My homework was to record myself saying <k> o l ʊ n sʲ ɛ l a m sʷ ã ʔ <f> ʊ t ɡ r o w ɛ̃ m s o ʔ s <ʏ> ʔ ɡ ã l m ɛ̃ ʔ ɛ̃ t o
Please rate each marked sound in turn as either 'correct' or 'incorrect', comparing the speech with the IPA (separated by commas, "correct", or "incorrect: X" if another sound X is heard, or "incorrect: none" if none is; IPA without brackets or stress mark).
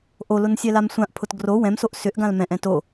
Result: incorrect: ʔ, incorrect: pʰ, correct